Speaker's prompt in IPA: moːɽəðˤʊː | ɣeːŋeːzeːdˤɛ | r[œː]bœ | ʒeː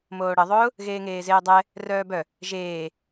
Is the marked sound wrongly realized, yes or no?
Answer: no